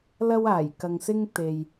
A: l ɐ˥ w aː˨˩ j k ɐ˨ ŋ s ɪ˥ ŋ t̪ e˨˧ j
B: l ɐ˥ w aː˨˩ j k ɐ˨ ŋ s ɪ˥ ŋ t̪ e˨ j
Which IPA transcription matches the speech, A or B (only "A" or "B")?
B